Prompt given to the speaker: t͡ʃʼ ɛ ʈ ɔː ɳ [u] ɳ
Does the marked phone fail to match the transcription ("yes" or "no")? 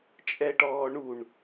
no